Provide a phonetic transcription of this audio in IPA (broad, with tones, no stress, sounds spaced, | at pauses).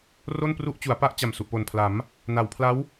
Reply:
r o˥˩ n p r u˥˩ ʔ t͡ɕ u˩˦ a̯ p a˥˩ ʔ t͡ɕ a˨˩ m s u˨˩ ʔ p o˨˩ n pʰ l a˩˦ m | n a˩˦ w pʰ l a˦˥ w